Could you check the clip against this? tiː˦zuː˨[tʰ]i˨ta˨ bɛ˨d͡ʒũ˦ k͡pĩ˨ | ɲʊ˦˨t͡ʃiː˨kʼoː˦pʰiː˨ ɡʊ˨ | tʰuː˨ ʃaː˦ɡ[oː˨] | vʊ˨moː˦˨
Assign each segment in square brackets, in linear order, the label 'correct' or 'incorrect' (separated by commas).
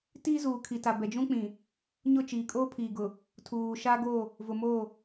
incorrect, incorrect